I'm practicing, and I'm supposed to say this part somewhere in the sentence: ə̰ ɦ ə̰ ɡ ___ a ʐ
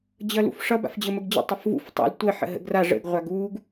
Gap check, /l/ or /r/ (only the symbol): r